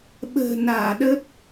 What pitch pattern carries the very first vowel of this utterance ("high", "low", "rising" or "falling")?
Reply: low